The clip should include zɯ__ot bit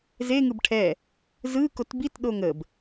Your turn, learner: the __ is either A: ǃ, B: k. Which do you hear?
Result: B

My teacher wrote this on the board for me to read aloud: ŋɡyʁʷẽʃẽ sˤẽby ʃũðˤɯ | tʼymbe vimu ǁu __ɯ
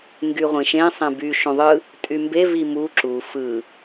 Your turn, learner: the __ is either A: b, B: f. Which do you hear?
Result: B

